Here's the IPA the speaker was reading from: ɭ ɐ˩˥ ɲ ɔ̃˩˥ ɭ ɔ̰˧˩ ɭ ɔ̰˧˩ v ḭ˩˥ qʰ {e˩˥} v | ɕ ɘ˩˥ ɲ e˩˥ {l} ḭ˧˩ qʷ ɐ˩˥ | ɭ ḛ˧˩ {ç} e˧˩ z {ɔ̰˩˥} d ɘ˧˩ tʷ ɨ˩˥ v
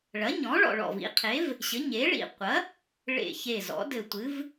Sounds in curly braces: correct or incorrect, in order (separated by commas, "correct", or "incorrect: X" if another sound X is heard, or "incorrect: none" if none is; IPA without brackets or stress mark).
correct, incorrect: ɭ, correct, correct